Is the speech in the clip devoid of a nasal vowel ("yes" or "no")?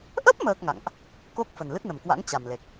yes